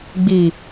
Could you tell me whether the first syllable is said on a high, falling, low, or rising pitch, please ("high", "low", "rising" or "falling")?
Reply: low